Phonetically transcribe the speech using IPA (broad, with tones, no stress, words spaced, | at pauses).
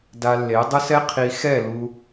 da˧lːe˨˦dˤʊ˦sɛ˦ qʰi˧xɛ˦˨ lu˧